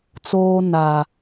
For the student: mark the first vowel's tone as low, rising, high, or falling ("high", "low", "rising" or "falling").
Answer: high